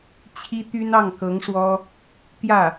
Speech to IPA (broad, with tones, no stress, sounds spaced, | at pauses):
t͡ɕʰ i˥ t̪ y˥ n ɑ˥˩ ŋ k ɤ˧˥ ŋ ʂ w ɔ˥ | t̪ j ä˥˩